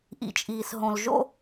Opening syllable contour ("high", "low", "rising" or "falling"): low